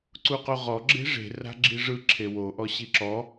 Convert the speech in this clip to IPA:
ǀ u q o ʁ ɔ ɡ͡ǁ e̤ ʐ e̤ r a̤ ɡ͡ǁ i ʐ ɯ ǁʰ e w o ʔ ɔ ɕ i ǁ ɔ

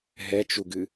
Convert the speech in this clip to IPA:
ɦ ɛ t͡ʃ u ɡ ɨ

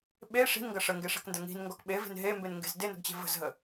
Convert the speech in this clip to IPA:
ɓ e ʂ i̤ n ŋ ɡ ɐ ʂ ə ŋ ɡ e ʂ ɛ̤ k n d ɐ ŋ i̤ n ŋ ɡ ɔ k ɓ e v e̤ n ɦ e m b e n ŋ ɡ e̤ z d e n ə̤ ɡ t͡ɕ e̤ v ə̤ z ɦ ə

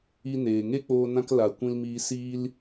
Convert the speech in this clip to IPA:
i˧ n eː˨ ŋ e˦ k͡p oː˧ n ã˦ k l a˨ kʷ ĩ˧ l m iː˧ s iː˧ l

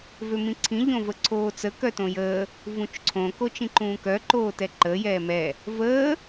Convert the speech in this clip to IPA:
v ø m ĩ ǀʰ ĩ ʎ õ v ə ǀʰ oː t͡s ə k œ t õ j əː | v ũ t͡ʃ ǀʰ õ k o t͡ʃ ĩ ǃ ũː k œ ǃ oː t ɛ ǃ əː j ɛː m ɛ | v əː

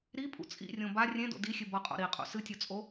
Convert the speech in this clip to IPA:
ɾ i pʼ ṵ t͡sʼ ḭ rʲ õ b a rʲ ẽ d o̰ d i xʲ ɨ b ʌ qʼ o̰ ɾ i qʼ ṵ s ɨ tʲ o t͡sʼ o

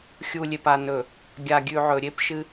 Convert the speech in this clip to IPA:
xʲ u˨ lʲ e˨ p a˨ n ɵ˨ | ɡʲ a˨ ɡʲ ʉ˨ ʕ ɵ˨ ɾʲ e˦ p ʃ ɨ˦

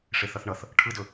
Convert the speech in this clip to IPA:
ʂ e θ ʌ θ ɳ ʌ θ | ʈʰ ɯ d ɵ

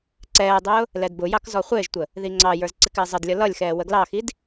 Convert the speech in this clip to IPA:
ǀ ɛː dˤ ʊː | l ɛ d b ʊ j ɑ k z ɔ χʷ ɪː ʒ tʷ ə | ð i ŋ͡ǀ ɑ j ə˞ z ǀ ɪ k ɪː zˤ ə d lʲ ʌ l ʌ lʲ x ɛː w ə ɡ l ɑ x i d

